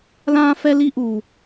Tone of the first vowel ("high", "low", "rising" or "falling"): high